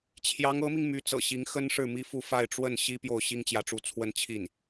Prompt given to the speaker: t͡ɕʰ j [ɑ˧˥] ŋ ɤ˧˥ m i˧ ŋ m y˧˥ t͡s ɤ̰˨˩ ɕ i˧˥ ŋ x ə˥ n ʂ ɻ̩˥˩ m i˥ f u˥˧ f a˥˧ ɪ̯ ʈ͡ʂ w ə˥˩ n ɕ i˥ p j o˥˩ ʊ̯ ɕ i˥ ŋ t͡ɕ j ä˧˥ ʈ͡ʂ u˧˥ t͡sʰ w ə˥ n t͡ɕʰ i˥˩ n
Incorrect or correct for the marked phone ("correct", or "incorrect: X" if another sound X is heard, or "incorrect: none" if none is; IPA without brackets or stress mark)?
correct